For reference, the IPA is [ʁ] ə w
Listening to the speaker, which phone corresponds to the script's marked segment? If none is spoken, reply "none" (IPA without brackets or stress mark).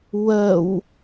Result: w